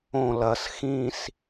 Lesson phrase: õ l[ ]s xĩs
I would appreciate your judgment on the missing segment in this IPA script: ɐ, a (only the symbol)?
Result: ɐ